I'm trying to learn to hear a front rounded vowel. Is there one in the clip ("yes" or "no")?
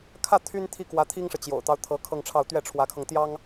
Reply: yes